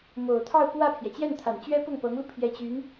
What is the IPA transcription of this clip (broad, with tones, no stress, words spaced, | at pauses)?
mo˨˩ʊ̯t̪ʰɑ˥˧ʊ̯pwä˥˩pʰjɛ˩ t͡ɕjɛ˥˩nt̪ʰa˨˩nt͡ɕɥɛ˥ pʊ˥˩ŋpɤ˧˥ŋlu˧ pʰjɛ˧˥t͡ɕy˧˥n